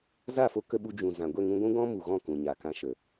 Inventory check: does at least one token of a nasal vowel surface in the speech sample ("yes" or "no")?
yes